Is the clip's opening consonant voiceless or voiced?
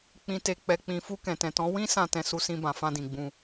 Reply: voiceless